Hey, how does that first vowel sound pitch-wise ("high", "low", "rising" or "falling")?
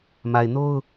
low